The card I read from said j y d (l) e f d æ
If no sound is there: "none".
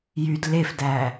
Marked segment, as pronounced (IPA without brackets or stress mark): l